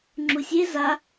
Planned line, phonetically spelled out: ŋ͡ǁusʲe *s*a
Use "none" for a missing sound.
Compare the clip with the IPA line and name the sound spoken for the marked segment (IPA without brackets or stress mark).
z